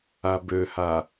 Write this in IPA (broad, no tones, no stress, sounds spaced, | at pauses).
a b ø h a